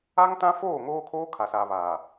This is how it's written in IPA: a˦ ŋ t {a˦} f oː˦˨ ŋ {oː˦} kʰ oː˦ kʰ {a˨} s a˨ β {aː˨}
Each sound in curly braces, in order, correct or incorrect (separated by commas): incorrect, correct, correct, correct